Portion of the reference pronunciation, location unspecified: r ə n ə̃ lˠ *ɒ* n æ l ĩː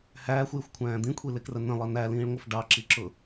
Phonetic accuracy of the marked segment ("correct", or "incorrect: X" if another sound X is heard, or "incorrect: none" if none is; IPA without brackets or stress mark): incorrect: ʌ